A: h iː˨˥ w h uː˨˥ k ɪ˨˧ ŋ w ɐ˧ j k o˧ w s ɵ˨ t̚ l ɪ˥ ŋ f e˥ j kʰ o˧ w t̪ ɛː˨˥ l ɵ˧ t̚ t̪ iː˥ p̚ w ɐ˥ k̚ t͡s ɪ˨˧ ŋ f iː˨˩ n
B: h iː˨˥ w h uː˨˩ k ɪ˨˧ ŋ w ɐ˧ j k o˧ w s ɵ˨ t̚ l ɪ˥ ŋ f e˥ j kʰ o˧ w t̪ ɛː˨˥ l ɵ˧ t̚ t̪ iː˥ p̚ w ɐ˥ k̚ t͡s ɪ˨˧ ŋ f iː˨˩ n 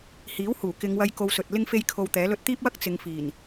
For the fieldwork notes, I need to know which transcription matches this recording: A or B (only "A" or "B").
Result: B